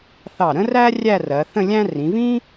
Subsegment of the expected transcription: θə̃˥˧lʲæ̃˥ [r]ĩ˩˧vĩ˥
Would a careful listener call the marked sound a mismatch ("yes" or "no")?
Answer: no